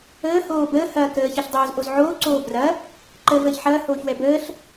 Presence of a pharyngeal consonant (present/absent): present